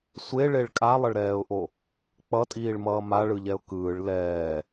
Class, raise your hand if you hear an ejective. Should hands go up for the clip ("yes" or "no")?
yes